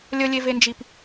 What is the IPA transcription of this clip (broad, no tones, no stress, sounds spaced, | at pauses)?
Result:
lʲ ə lʲ e v e n d͡ʒ i p